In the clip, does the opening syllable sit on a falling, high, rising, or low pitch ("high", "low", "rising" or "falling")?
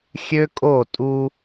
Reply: high